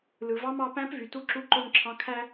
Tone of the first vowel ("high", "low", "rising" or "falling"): low